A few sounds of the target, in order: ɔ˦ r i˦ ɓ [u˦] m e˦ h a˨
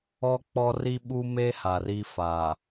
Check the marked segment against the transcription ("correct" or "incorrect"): correct